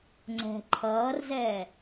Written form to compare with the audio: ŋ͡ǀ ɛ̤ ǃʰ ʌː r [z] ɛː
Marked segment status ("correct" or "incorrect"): correct